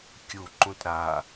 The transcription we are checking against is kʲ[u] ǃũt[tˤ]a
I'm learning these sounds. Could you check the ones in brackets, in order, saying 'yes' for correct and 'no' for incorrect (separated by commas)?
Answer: yes, no